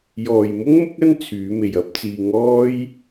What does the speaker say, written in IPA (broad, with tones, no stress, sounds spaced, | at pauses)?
j ɔː˨ j m ʊ˥ ŋ m ʊ˥ k̚ ɐ˥ n t͡sʰ yː˨˧ m e˨ j ɐ˥ p̚ t͡s iː˧ ŋ ɔː˥ j